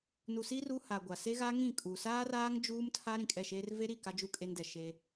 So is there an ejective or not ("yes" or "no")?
yes